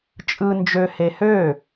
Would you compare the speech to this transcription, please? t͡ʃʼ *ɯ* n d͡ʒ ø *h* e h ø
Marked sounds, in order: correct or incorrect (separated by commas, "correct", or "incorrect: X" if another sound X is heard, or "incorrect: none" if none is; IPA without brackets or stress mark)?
correct, correct